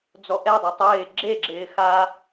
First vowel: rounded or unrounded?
rounded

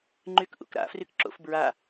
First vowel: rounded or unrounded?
rounded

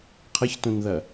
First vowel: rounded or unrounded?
unrounded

